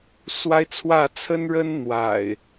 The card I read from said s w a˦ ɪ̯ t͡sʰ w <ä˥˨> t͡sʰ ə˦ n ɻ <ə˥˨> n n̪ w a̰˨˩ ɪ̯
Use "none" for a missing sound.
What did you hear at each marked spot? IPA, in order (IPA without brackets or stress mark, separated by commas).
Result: ä˥˨, ə˦